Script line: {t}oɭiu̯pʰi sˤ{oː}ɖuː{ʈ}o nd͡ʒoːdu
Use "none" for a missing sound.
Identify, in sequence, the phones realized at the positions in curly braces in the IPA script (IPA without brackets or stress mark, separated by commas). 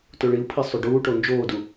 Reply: t, o, ʈ